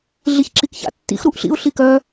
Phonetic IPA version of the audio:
ɮ i ç ǁ i k ç a̰ tː ḭ x ɾ u ʔ ɬ ḭ ʊ̯ ɬ i k œ

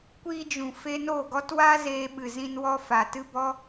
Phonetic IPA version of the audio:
kʷ iː˧ d͡ʒ ũ˨ f e˧ n o˦˨ ɡ ɔ˦ t w a˦ z eː˧ ɓ ɨ˨ z ĩ˧ n w ɔ˧ f a˨ t ɨ˦ b ɔ˦

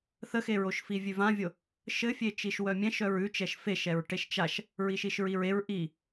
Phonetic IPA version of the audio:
θ ə x e ɹ o ʃ f i vʲ ʉ v ã vʲ o | ʃ ɘ fʲ e t͡ʃ i ʃ w œ mʲ ɛ̃ ʃ œ ɹ ʉ t͡ʃ ɛ ʃ f e ʃ ɛ ɹ ʈ e ʃ t͡ʃ a ʃ | ɹ i ʃ i ʃ ɹ i ɹ e ɹ ʔ i

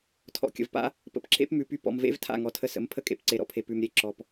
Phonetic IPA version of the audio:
tʰ ɔ̰˨ kʲ ə̰˨ v p a̰˦ | p ə̰˧ p ǁ ḛ˦ p m ʉ˨ p y˧ p ɔ̰˨ m v ḛ˦ v tʰ a̰˦˨ ŋ ɔ˨ tʰ ə˧ s ə̰˨˦ m pʰ ə˦ kʼ ḛ˧ p ǀ e˨ ɾ ɔ̰˧ pʰ e˨ p ʉ˨ m ɾʲ e˧ ǁ ɔ˨ p

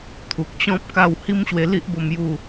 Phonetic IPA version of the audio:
t̪ʰ u˨ k̚ t͡ɕ ɔ̃˦ p̚ k a˥˧ w h i˦ m ɕ w e˧ l i˦ ʔ b o˥˧ m j u˥˧

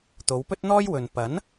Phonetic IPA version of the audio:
t̪ o˨˧ w p ɵ˥ t̚ n̪ ɔː˥ j w ɵ˨ n p ɐ˨˥ n

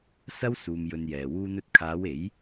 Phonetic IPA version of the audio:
s ɐ˥ w s uː˧ m j ɵ˧ n j ɛː˨ w uː˧ n̪ ɵ˧ t̚ kʰ aː˨˧ w e˨˥ j

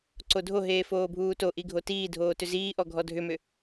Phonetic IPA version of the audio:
ǀ o dʱ o ɦ eː f oː bʱ uː t o ʔ i ɡʱ o t iː dʱ oː t ʏ z iː ʔ ɔ ɡʱ ɔ dʱ ʏ m ʏ

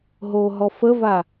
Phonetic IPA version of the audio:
ɦ o ɦ ɔ f ə v a

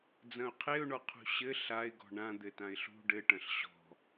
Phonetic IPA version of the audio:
d͡z ɐ̃ ʊ̯ qʰ e ʊ̯ ɳ ɔ qʰ ṳ ɕ ɘ ɬ a ɪ̯ ɡ ɔ̤ ɳ ã d̪ ɘ t ã ɪ̯ ɬ ṳ ɖ ɘ ʈ ɐ̃ ɬ ɕ ɔ̤

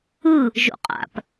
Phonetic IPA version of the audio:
ɯ | ʒ o̰ qʼ a̰ p

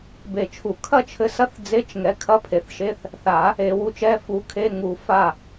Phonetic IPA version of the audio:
b e˨˩˦ t͡ʃʰ u˨˩˦ kʰ ɐ˥˩ t͡ʃʰ ɘ˨˥ s ɐ˧˥˧ θ d͡z e˧˥˧ t͡ʃ ŋ ɛ˨˥ kʰ ɐ˧˥˧ pʰ e˨ θ ʃ e˧˥˧ θ | θ a˨˩˦ | e˨˩˦ w u˨˥ t͡ʃ ɛ˧˥˧ f u˨˥ kʰ e˧˥˧ ŋ u˨˩˦ f a˥˩

